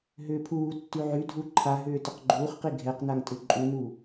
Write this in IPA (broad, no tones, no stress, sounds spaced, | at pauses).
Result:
ɦ ʏː pʰ uː tː y ʕ y dʱ u ǃʰ a ɦ ʏː t ʏ q ɡ͡ǃ uː χ q i ɡʱ ɛ q n a ŋ tʼ ʏ ǃʼ u n uː